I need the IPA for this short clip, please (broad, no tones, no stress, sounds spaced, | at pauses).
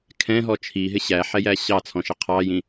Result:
kʰ ɛ̃ ɦ ɔ t͡ʃʰ i ɦ ɪ ɕ æ ħ ɛ j æ ɕ ɑ t͡sʰ ɔ̃ ʃ ə qʰ ɑ j ĩ